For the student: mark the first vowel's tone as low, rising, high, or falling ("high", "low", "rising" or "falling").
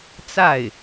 falling